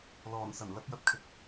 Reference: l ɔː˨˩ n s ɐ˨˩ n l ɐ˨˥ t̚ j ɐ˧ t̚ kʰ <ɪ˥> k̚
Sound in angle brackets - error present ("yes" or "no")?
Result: yes